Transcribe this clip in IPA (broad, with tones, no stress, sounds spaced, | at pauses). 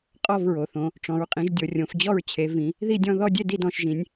qʼ ɔ˥˧ v ɹ o˩˧ θ õ˩˧ | ʈ͡ʂ ɔ̃˩˧ ɹ qʼ ĩ˩˧ ʒ dʲ o˩˧ rʲ õ˩˧ f d͡ʑ ɔ˥˧ ɹ t͡ɕʰ e˩˧ v ĩ˩˧ | ð i˥˧ dʲ ɔ̃˥˧ ð ɔ˥˧ dʲ e˥˧ d i˥˧ d ɔ̃˩˧ ʃ ʒ ĩ˩˧ nʲ